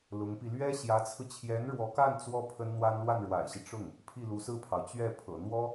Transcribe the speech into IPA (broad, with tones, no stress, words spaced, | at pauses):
lʊ˧˥ŋpi˧ lɥɛ˥ɕjä˧˥t͡sʰɹ̩˧ t͡ɕʰjɛ˧˥nɻwɔ˧˥ka˥˩n t͡swɔ˥ pʰə˥nn̪wa˥n lwa˥˩nɻwa̰˨˩ɪ̯ɕi˦ ʈ͡ʂʊ˥˩ŋ | pʰi˥˩lu˧˥sɹ̩˥˩pʰɑ˩ʊ̯ t͡ɕɥɛ˥˩pʰɤ̰˨˩ n̪wɔ˥